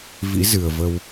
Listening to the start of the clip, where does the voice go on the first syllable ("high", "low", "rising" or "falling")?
rising